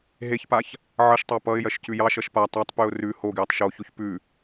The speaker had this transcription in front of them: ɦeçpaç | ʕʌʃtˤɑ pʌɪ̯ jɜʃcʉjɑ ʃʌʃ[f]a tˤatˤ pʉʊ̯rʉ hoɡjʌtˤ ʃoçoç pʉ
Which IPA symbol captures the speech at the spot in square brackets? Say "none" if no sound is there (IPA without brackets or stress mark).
p